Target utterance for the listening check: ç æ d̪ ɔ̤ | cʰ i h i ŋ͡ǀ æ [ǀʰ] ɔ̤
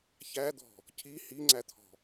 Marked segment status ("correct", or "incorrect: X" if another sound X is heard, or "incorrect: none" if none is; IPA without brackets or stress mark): incorrect: t̪ʰ